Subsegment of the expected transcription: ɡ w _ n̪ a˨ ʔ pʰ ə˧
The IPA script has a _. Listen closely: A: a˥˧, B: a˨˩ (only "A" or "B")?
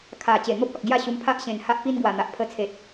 B